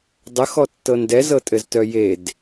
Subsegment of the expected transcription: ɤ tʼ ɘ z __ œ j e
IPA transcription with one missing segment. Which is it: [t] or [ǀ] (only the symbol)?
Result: t